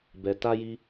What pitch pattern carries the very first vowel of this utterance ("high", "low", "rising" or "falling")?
low